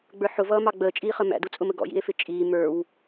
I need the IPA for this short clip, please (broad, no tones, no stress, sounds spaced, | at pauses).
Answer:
ɡ͡b ə˞ ħ ʊ v ʌː m ɑ ɡ͡b əː t͡ʃʼ iː χ ə m æ̰ d u t͡sʼ ʊ m ə ɡ ɔ̰ j ḭ e̯ f ɪ t͡ʃʼ iː m ə˞ w